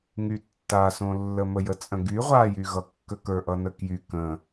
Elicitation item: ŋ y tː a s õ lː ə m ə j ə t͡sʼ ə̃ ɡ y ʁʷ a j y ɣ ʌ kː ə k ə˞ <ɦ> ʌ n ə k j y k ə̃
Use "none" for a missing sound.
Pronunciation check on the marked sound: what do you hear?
ʔ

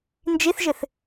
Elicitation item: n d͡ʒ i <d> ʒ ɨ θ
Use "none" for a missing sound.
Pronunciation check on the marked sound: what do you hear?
θ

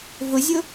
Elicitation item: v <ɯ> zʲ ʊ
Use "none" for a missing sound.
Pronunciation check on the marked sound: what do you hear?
ʊ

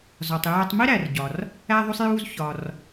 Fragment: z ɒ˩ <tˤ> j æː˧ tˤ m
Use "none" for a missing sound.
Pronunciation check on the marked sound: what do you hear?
tˤ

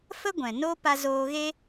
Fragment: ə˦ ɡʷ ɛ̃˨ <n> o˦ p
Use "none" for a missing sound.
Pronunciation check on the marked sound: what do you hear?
n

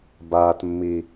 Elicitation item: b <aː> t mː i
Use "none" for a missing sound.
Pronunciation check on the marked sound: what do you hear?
aː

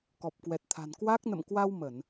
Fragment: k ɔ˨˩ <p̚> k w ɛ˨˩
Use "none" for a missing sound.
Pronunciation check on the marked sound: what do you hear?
p̚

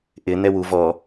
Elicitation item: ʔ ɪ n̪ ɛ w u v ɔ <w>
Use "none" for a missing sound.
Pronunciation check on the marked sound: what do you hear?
none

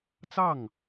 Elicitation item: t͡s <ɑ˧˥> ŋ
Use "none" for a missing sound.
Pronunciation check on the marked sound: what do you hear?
ɑ˥˩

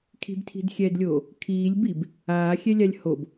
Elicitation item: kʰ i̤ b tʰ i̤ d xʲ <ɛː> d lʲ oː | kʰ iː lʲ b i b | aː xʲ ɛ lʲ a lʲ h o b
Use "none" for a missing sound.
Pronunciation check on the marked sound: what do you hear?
ɛː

